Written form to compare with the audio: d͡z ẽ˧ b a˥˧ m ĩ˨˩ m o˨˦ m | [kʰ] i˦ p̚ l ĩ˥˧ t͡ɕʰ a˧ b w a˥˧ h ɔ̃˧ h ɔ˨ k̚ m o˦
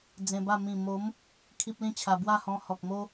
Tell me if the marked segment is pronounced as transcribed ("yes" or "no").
yes